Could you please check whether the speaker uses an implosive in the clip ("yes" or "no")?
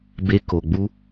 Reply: no